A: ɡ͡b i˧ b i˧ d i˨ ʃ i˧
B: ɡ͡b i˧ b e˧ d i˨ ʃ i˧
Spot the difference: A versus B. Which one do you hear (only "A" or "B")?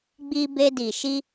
B